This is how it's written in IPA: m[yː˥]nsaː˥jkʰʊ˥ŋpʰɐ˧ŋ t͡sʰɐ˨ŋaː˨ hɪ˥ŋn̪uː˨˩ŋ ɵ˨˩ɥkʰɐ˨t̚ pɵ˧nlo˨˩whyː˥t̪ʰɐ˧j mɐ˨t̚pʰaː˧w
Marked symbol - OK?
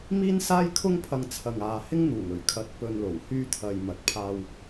no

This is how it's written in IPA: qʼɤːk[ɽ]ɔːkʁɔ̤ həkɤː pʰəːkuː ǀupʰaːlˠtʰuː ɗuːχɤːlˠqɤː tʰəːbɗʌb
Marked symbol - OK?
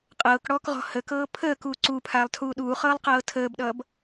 yes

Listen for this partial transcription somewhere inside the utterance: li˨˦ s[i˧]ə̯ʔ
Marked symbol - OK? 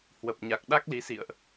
no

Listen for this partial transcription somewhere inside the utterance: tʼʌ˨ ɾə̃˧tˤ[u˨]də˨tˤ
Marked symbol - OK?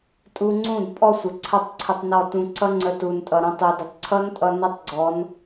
yes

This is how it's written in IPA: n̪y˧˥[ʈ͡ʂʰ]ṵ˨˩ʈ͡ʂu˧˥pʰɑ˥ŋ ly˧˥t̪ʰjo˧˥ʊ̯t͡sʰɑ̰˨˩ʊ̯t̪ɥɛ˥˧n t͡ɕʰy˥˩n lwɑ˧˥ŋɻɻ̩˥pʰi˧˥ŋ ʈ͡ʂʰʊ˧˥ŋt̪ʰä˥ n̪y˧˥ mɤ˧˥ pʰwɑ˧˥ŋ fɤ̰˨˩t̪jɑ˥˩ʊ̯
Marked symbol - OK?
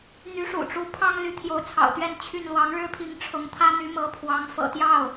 no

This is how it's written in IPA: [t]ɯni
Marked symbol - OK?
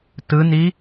yes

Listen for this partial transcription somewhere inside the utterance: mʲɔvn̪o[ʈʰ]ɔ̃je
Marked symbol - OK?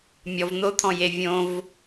no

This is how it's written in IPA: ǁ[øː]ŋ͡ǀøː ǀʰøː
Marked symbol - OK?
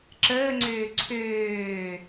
no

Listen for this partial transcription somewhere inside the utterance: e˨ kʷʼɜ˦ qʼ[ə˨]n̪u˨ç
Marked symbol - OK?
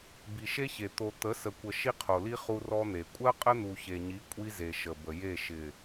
no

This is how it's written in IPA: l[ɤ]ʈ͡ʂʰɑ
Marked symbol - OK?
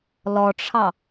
no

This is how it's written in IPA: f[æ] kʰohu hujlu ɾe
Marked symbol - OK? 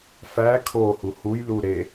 yes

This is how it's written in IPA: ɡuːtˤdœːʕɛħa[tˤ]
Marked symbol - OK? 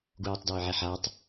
yes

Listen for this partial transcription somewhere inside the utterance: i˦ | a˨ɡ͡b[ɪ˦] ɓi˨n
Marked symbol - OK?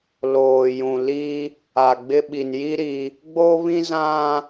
yes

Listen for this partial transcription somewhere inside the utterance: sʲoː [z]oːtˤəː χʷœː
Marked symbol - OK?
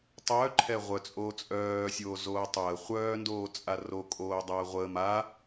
yes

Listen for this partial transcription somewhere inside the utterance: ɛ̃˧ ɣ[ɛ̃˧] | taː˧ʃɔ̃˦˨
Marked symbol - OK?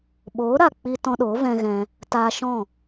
yes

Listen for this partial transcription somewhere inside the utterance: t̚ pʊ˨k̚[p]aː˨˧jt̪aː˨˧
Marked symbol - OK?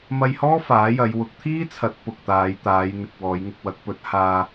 no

